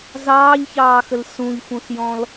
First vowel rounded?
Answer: no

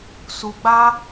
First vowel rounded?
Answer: yes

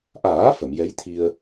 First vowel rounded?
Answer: no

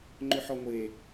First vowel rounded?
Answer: yes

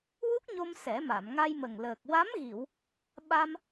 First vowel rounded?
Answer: yes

